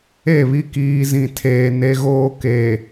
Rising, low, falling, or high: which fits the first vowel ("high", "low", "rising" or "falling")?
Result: falling